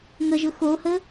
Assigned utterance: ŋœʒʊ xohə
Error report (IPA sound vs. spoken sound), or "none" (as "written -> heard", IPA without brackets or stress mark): œ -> ə